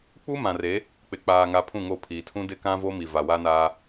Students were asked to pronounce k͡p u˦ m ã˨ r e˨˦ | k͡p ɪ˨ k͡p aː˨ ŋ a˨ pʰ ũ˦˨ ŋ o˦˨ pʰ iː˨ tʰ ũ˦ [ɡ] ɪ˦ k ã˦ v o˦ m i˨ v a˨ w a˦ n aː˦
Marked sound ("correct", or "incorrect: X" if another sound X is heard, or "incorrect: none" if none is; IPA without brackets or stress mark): incorrect: d